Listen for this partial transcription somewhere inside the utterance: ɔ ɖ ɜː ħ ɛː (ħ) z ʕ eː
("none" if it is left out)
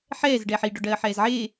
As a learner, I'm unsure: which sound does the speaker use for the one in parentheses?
none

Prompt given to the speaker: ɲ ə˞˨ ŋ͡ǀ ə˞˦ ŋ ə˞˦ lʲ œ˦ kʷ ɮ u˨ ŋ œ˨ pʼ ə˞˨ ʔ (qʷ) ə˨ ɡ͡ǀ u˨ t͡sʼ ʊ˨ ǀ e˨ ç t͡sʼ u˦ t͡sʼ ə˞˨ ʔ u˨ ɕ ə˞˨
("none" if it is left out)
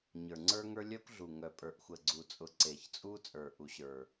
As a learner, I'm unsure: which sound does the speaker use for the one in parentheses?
xʷ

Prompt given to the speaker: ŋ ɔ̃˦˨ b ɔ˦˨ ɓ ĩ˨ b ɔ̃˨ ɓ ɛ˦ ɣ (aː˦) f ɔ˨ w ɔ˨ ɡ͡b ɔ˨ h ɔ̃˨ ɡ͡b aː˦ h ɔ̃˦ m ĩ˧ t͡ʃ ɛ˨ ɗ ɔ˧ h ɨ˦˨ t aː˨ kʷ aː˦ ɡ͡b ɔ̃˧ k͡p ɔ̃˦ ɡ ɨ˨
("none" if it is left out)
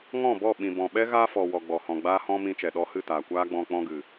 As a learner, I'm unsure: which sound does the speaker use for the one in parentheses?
aː˦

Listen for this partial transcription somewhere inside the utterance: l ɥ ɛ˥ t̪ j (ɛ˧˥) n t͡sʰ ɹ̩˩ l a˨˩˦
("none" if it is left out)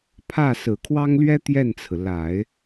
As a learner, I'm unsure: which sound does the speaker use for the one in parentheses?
ɛ˥˩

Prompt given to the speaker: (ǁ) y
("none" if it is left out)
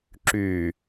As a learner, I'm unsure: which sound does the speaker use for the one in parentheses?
ǁ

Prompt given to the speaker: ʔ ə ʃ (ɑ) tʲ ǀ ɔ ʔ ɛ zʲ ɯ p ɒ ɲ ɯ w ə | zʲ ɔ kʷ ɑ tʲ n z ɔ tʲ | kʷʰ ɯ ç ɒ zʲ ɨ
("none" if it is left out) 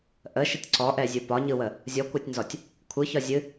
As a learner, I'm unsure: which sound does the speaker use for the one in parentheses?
ə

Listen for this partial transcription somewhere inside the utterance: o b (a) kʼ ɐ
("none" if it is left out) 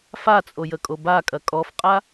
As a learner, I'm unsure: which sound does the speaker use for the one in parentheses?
a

